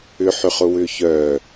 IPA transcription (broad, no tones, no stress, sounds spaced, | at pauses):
ʏ ħ ʏ χ ʊ w ʏː ç œ